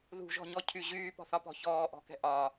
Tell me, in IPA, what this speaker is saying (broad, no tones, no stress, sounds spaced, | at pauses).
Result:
ð ṳ ʒ ɔ̤ ɲ ɔ cʰ y ʑ yː p ɔ̤ θ ɒ p ɔ̤ ç ɔː ʔ ɔ̤ k ɛ̤ ʔ ɒ